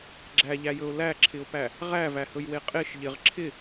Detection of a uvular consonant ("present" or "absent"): present